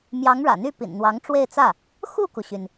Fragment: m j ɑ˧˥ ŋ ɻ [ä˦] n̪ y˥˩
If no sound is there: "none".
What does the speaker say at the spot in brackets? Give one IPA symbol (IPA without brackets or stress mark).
ä̰˨˩